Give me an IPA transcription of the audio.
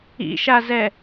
ḭʃazɛ

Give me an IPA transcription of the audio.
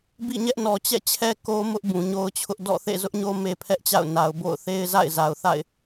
bḭ˦˨ɲɛ˦ʔnɔ˨ t͡ɕɛ̰˦˨t͡ɕʰɛ˦ ko˦ mʊ˦ʔ bũ˨ɲo˦ʊ̯t͡ɕʰʊ˦ʔ dɔ̰˦˨ θḛ˦˨zʊ˦ʔɲo˦ me˦pʰɛ˦ʔt͡ɕa̰˦˨ʊ̯ na˨ʊ̯bo̰˦˨ʊ̯ θe˦ɪ̯za̰˦˨ɪ̯za˨ʊ̯θa̰˦˨ɪ̯

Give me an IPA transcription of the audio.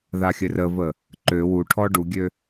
ðaxʲɘrəvə | ǃø wu ʈʰɔɖuɡʲø

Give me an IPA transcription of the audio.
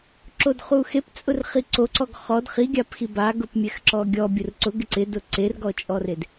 ǁodχuxep t͡sʼʊrχiǀoǀɔɡ χɔd χiɡʲapxi baɡʊpmʲɛx ǁɔɡʲɔ bʲʊrǀʊɡ ɪǀɪdʊ ǀerɡɔt͡ʃʼɔred

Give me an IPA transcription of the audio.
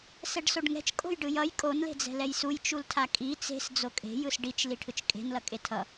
sɛɖsoɖŋɛ̤t͡ʃ kʼo̤jɖɯjʌj kʼon le̤d͡zɛ̤lɛjsuj t͡ʃultʰakʼi t͡se̤s d͡zokʼe̤ jɯsɖit͡ʃ liʈʰɯt͡ʃkʼe̤n lʌkʼetʰʌ

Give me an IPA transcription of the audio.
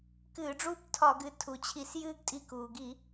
kɨː˧˩˧ɖ͡ʐuː˦ptʰɒ˧˩˧ɡɨ˩˧˩ tʰu˩˧t͡ɕʰi˧˩s jɨː˦ɡtʼi˧˩kuː˩ ɡi˧˩˧

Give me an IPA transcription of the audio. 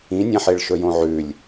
ĩnʲãħeɭ ʃɵjõʕʉlʲ

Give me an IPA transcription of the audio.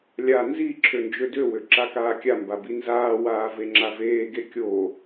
lʲa nzi ǁʰønd͡ʒødøwø ǁakaːkʲamba binzaːwaː veŋ͡ǁaveːɡe kʲo

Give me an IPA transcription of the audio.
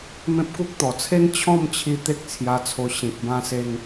mẽ˦p̚ku˦k̚ t̪ɔ˨˩t͡sʰe˦n t͡ɕʰɔ̃˥˧mt͡ɕʰi˧ t̪e˦k̚t͡sʰja˧t͡sʰo˧ ɕĩ˨k̚ bã˧se˧ŋ

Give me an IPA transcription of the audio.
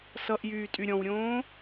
sʌʔjyːtʼy ɾʲɔ̃wɾʲõː

